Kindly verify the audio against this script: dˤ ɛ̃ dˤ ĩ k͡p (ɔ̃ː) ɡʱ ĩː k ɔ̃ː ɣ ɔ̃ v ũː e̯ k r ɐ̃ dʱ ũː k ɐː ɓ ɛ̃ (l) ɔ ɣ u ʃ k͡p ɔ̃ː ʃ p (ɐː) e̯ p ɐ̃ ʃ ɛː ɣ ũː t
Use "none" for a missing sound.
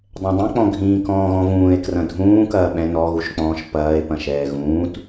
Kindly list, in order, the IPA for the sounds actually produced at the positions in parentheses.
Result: ɔ̃, n, ɐː

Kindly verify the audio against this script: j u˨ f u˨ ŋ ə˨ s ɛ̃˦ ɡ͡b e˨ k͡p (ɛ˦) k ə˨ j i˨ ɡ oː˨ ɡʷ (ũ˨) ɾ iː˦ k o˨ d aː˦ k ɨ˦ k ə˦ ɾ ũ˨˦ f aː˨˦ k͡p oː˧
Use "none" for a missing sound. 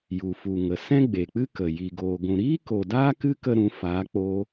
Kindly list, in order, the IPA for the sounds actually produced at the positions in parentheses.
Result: ɨ˦, ũ˨

